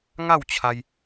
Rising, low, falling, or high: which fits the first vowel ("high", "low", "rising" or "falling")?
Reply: falling